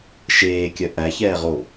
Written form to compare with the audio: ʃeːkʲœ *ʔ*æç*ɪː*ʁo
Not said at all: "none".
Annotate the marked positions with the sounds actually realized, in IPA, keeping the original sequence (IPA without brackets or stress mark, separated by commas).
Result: ʔ, ɛː